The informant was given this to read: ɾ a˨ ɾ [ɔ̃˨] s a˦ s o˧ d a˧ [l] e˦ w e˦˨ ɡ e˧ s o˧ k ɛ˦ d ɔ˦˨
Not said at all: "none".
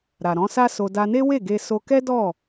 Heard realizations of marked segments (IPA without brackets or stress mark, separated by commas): ɔ̃˨˦, n